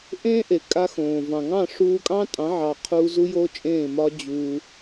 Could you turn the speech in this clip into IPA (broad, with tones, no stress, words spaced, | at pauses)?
ʔẽː˦ʔe˨ kʼa˧xõː˨vɑ̃˨ŋɑ̃˦˨ ʂuː˧kʼɑ̃˦tʼɑ̃˨˦ ʕɑ˧ qʰu˧ zu˦jo˦t͡ʃʼẽː˦˨mɒ˦ d͡ʑuː˧